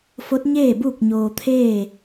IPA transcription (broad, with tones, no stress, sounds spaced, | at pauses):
f o˧˥ t̚ ɲ eː˥˨ b uː˥˨ k̚ ɲ oː˧ t̪ʰ eː˥˨